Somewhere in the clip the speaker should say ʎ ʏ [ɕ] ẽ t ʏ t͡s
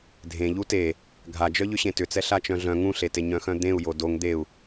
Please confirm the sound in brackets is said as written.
yes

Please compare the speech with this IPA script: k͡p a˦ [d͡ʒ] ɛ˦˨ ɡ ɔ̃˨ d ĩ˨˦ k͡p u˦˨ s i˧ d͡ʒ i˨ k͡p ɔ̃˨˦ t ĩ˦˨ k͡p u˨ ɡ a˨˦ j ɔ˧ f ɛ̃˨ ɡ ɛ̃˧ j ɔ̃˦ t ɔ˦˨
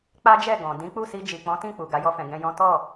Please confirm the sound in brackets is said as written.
yes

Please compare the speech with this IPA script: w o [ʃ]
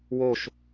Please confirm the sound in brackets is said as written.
yes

